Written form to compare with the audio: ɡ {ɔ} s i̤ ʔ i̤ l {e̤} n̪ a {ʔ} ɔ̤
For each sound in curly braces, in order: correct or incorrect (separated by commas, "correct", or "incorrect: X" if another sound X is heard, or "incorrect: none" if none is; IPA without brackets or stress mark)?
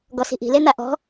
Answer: correct, incorrect: e, correct